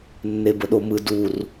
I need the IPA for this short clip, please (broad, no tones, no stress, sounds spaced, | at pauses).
nː e b ə ɗ o m ɯ d u r